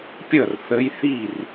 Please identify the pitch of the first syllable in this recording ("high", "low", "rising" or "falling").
falling